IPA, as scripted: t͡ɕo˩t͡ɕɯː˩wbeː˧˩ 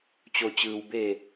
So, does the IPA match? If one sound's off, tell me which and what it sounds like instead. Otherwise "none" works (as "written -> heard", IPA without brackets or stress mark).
none